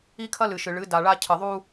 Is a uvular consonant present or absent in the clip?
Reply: absent